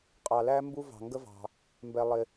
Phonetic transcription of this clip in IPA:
qʼ ɑ˧ l æ˥ m b u˥ v ɑ̤˧ ŋ ɡ ə˥ v ɑ̤˧ | m b ɛ˧ lˠ ɪ˧

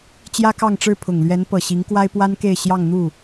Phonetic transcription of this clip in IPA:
t͡ɕ j ä˥ k ɑ˥˧ ŋ ʈ͡ʂ ɻ̩˥˩ pʰ ʊ˨˩ ŋ l ɥ ɛ˧˥ n p ɤ˨˩ ɕ i˧˥ ŋ k w a˥ ɪ̯ p w a˥ n k e˥˧ ɪ̯ ɕ j ɑ˥˧ ŋ n̪ u˥˩

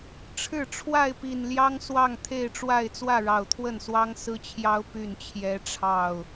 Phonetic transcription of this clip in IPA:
ʈ͡ʂʰ ɻ̩˥˨ ʈ͡ʂʰ w a˥˨ ɪ̯ p i˨˩ n l j ɑ˦ ŋ s w ɑ˥˨ ŋ t̪ʰ e˥˨ ɪ̯ ʈ͡ʂ w a˥˨ ɪ̯ t͡s w ä˥˨ ɻ ɑ˨˩ ʊ̯ t̪ʰ w ə˥˨ n s w ɑ˦ ŋ s ɹ̩˦ t͡ɕʰ j ɑ˦ ʊ̯ p y˥˨ n t͡ɕʰ j ɛ˦ ʈ͡ʂʰ ɑ˥˨ ʊ̯

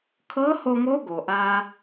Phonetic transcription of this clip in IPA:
kʰ ɤ˧˥ h o˧ ŋ o˧˥ ɡ o˩ ʔ a˥

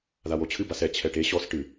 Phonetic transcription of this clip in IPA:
ð a w o t͡ɕʰ ɨ b a s ɛ t͡ɕʰ ɛ ʈ e ɕ ɔ s ʈ ɨ

